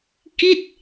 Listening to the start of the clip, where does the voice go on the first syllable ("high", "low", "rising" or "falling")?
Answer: falling